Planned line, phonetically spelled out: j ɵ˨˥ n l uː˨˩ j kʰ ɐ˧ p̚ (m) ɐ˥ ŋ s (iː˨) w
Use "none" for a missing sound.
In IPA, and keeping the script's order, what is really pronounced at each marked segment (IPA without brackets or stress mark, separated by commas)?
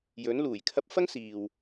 f, iː˨